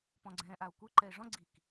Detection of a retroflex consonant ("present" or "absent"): present